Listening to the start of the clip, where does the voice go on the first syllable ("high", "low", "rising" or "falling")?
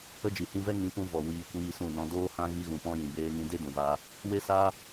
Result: high